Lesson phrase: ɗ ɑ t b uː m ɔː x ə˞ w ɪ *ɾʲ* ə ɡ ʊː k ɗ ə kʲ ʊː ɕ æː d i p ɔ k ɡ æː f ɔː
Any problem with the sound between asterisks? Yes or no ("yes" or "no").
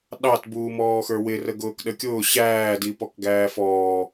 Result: yes